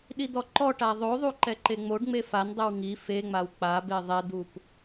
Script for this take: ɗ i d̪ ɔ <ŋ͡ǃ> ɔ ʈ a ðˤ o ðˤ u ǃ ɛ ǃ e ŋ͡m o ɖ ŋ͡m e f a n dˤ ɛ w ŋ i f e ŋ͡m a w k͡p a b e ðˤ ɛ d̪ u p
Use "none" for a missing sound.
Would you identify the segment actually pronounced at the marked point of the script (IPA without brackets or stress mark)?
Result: ǃ